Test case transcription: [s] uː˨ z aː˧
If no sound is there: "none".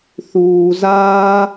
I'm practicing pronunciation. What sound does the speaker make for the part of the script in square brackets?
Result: θ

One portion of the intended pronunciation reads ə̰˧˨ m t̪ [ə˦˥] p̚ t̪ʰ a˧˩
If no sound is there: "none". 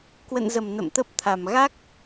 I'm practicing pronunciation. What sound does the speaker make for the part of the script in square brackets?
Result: ə˦˥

